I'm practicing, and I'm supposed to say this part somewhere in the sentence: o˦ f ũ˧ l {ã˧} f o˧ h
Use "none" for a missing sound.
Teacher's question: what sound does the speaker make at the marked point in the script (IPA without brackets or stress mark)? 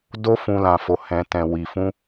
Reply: ã˧